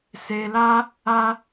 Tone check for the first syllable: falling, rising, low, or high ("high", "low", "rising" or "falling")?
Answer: low